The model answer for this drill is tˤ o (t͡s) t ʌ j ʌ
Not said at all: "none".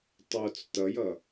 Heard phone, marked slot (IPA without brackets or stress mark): t͡s